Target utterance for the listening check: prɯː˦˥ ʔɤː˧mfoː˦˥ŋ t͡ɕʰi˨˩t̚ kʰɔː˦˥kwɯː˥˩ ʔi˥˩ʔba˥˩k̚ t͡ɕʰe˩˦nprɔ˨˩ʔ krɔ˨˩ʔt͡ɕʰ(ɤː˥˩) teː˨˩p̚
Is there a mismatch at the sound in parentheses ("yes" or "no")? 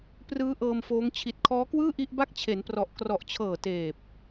yes